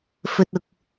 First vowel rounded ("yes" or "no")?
yes